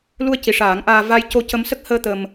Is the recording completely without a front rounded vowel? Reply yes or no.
yes